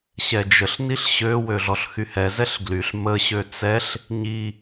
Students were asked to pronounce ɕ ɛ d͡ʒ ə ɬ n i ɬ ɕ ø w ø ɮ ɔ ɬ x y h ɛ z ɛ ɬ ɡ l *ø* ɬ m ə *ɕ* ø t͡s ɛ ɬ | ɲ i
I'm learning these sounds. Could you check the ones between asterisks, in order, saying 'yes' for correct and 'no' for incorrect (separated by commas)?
no, yes